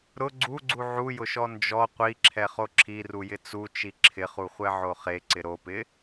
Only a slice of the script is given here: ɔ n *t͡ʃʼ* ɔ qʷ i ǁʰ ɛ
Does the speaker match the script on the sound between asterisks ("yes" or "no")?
no